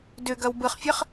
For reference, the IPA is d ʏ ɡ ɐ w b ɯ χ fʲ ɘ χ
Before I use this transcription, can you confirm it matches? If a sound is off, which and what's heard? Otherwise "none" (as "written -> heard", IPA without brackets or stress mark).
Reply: none